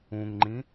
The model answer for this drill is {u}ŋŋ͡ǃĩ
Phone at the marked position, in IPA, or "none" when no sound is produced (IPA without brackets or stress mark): ũ